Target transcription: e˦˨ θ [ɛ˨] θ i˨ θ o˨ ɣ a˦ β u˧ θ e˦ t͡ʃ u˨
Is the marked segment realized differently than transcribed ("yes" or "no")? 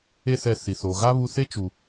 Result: no